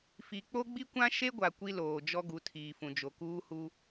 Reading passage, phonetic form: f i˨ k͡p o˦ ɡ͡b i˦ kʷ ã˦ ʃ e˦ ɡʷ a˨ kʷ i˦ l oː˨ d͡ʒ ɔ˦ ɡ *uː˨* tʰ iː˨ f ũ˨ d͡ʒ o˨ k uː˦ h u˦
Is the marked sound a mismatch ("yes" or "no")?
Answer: yes